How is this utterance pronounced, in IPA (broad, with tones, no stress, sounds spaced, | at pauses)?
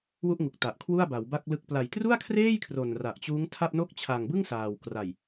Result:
w u˥˩ ʔ ŋ u˨˩ k̚ t a˨˩ ʔ kʰ w u˥˩ a̯ b a˩˦ w b a˥˩ k̚ l ɯ˦˥ k̚ p l a˨˩ j t r u˥˩ a̯ kʰ r eː˥˩ j kʰ r o˨˩ n r a˨˩ ʔ t͡ɕ uː˦˥ ŋ tʰ a˥˩ p̚ n o˦˥ k̚ t͡ɕʰ a˨˩ ŋ b ɯ˥˩ ŋ s aː˨˩ w k r a˨˩ j